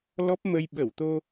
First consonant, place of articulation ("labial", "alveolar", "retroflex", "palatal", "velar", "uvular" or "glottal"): alveolar